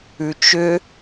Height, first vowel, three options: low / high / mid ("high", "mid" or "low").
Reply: high